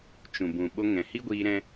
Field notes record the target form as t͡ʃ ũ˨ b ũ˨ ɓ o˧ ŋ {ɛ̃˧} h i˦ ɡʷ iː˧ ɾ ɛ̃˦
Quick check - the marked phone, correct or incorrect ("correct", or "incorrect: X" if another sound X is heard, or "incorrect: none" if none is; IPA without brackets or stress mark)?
incorrect: ɛ̃˨